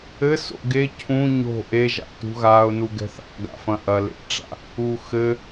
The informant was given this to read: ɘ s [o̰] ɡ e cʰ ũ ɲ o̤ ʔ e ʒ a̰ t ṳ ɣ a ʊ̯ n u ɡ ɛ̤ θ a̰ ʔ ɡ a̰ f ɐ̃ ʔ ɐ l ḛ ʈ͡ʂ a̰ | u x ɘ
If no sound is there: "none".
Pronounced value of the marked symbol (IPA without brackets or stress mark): o̰